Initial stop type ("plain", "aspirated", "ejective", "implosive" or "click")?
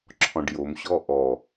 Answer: click